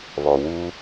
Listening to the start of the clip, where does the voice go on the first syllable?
low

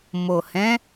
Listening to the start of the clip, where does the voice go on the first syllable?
low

